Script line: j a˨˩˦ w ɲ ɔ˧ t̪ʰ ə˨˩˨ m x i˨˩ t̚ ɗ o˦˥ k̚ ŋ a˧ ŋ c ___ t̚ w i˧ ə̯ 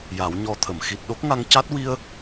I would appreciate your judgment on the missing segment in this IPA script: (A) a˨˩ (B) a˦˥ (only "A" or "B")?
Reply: B